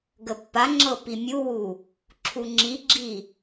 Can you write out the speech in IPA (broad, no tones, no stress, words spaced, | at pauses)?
ɡəpːaŋ͡ǁɤ pimʲuwu | ǁʰuŋ͡ǁiɡ͡ǁi